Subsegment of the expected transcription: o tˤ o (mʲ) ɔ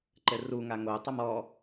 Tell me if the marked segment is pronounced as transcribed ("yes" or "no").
no